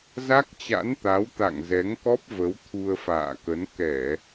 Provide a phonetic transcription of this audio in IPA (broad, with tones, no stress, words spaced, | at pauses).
za˦˥k̚t͡ɕa̰˧˥nt̪a˨˦w t̪a̰˧˨ŋ zɛ˨˦ŋkɔ˦˥p̚ və˨˦wt̪ʰu˧ə̯fa̰ː˧˨kə˨˦n kɛ˧˩˨